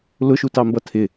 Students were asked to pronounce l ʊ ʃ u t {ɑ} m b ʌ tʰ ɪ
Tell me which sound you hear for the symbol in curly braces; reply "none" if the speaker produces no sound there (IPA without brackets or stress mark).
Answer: ɑ